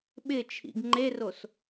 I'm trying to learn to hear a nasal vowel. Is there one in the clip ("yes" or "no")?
no